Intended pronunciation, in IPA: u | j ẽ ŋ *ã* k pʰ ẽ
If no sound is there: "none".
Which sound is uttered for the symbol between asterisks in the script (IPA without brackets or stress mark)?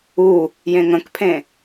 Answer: ə̃